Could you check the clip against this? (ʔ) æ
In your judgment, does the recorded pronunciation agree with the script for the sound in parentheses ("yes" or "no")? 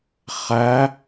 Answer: no